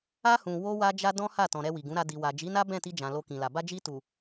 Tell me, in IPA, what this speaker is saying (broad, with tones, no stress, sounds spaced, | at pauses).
a˦ h ũ˧ w o˦ w a˦ d͡ʒ a˦ d ɔ̃˦ h a˦˨ t ɔ̃˨ ɾ ɛ˧ w i˨ ɡ ũ˨˦ ɾ a˧ d i˨ w a˨ d͡ʒ i˨˦ n a˦ b ɛ̃˦˨ t i˧ d͡ʒ ã˨ l o˧ k ĩ˨ l a˨ b a˧ d͡ʒ i˧ t u˨